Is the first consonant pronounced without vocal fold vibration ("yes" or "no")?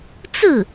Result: yes